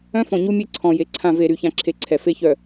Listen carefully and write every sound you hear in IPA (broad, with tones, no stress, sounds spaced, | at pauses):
œ̃˦ f ɔ̃˨ ɲ u˦ mʲ e˦ ǀʰ ɔ̃˨ j e˨˦ ǀʰ ã˦˨ v e˦˨ ɾ y˦ ç ã˦ ǁʰ e˦ ǀʰ ɛ˨ f e˦ ç œ˨